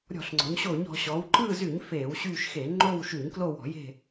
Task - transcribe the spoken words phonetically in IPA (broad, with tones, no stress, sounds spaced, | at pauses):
ɾʲ ɔ̤˧˩˧ ɬ ŋ͡ǀ ɔ̤˩˧ ɲ ɕ oː˧˩˧ ɲ ɔ̤˩˧ ɕ ɔ˩˧ w ǃ ɯː˦˨ z y˧˩˧ ɲ f eː˧˩˧ w ɕ yː˦˨ ʃ x eː˧˩˧ ŋ͡ǃ oː˦˨ w ʃ y˧˩˧ ɲ k l o˦˨ w ɔ̤˧˩˧ j e̤˦˨